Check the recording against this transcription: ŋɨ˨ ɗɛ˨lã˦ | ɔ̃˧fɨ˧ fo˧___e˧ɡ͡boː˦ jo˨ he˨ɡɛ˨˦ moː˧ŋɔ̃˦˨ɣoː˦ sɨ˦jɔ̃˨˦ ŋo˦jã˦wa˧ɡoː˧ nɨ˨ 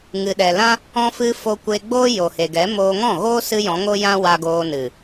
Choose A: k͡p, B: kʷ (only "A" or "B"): B